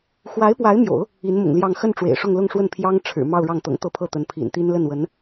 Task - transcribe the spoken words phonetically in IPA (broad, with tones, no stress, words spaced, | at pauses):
xwa˧˥ɪ̯pwa˧˥ɪ̯mjo̰˨˩˦ʊ̯ | i˧˥nmʊ̰˨˩ŋljɑ˥˧ŋ xə˥˩n ʈ͡ʂwḛ˨˩ɪ̯ʂʊ˥˧ŋlʊ˥˧ŋʂwə˥˩n pʰjɑ˥ŋ ʈ͡ʂʰɻ̩˨˩ mɑ˥˧ʊ̯ɻɑ˥˩ŋt̪ɤ̰˨˩ŋ t̪ɤ˥˧pʰɤ˥˩ t̪ə˧˥n pʰḭ˨˩nt̪i˥n lə˥˩nwə˧˥n